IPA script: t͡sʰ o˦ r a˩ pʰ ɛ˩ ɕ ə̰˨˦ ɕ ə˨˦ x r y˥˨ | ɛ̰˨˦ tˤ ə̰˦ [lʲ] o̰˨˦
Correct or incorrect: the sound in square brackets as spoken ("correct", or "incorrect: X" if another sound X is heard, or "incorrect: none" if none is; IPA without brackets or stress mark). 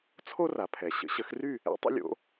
correct